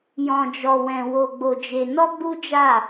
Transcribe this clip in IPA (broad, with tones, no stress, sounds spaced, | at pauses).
j ɔ̃˧ d͡ʒ ɔ˧ w ɛ̃˧ w o˧ ɡ͡b o˧ d͡ʒ e˧ n ɔ˦ ɡ͡b u˦ d͡ʒ a˦˨